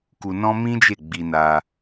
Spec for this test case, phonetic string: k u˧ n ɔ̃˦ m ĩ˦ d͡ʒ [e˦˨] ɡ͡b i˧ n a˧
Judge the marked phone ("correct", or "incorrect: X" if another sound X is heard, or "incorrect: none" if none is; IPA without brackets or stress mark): correct